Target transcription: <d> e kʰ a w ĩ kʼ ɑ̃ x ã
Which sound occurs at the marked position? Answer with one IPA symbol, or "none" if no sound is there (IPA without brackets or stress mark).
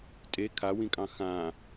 tʼ